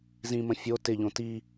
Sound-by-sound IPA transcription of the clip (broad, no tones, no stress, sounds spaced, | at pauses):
z ĩ m ə̃ fʲ o t ɪ ʎ õ t i